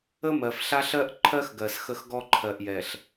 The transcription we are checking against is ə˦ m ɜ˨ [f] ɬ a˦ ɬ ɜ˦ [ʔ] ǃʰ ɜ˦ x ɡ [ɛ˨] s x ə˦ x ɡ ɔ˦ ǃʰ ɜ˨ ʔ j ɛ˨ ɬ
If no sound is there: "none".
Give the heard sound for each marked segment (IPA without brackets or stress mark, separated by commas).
f, ʔ, ɜ˨